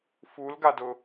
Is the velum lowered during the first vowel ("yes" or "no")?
no